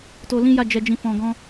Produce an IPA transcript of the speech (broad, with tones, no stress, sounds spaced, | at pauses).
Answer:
t o˧ l ĩ˦ j a˦˨ d͡ʒ ɛ˧ d͡ʒ ĩ˧ f ɔ̃˧ ɡ ɔ̃˦